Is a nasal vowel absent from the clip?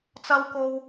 yes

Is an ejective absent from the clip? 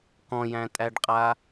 no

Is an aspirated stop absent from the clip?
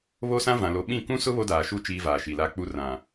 yes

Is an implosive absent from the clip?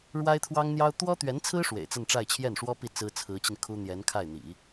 yes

